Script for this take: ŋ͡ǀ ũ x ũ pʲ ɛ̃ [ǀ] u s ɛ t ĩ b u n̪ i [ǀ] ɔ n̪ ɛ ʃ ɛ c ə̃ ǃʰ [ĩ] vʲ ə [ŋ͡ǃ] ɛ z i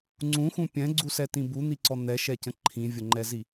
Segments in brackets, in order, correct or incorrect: incorrect: ɡ͡ǀ, correct, correct, correct

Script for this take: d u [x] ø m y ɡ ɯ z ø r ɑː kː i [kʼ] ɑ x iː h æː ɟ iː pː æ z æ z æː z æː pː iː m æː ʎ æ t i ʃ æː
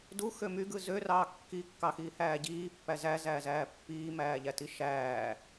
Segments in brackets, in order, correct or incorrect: correct, incorrect: kː

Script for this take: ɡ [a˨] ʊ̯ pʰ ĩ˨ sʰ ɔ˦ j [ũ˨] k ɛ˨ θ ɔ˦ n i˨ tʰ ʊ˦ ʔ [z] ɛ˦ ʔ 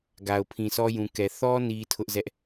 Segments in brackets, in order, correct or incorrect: correct, correct, correct

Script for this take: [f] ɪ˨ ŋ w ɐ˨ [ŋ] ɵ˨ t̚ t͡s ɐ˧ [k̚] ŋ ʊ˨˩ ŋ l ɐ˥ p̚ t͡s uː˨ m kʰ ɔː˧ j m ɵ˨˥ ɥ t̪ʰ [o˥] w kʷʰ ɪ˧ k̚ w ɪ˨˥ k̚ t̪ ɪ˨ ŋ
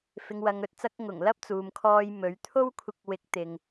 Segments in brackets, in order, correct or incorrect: correct, correct, correct, correct

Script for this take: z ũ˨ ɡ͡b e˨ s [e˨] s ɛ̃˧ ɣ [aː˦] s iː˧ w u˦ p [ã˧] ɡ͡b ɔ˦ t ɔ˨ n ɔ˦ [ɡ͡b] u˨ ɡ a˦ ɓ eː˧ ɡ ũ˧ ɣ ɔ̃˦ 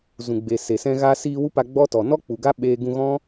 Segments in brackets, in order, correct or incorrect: correct, incorrect: aː˧, incorrect: a˧, incorrect: k͡p

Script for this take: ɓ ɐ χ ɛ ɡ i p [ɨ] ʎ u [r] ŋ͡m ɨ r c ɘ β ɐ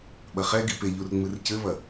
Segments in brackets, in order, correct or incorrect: incorrect: e, correct

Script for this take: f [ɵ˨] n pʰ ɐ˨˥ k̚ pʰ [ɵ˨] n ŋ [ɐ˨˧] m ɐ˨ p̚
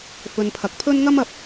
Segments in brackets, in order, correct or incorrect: incorrect: ɵ˧, incorrect: ɵ˥, incorrect: ɐ˥

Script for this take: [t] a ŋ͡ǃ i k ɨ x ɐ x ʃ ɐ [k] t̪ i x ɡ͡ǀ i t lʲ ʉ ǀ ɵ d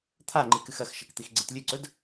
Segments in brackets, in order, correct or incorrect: incorrect: t̪ʰ, correct

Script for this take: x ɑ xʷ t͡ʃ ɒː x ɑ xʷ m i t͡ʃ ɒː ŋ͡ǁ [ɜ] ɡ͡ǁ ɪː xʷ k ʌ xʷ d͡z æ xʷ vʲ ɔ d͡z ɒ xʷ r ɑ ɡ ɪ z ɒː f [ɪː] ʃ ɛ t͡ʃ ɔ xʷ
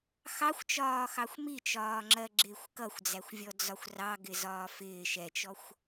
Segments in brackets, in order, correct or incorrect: correct, correct

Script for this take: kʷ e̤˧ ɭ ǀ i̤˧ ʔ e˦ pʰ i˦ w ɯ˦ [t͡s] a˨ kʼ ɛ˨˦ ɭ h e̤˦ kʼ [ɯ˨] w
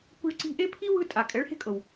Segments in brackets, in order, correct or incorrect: incorrect: tʼ, incorrect: ɤ˨

